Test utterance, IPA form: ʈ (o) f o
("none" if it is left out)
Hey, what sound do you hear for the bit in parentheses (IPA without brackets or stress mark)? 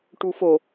u